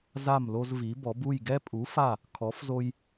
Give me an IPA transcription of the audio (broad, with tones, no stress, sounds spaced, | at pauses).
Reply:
z a˦˨ m l o˦ z v i˨˥ b ɔ˨˥ b u˦˨ j ɡ ɛ˦ pʼ u˨˥ f a˦˨ | kʰ ɔ˨˥ f z o˦ j